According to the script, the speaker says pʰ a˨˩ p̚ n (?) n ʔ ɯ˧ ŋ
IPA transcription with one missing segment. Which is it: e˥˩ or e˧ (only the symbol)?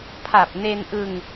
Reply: e˧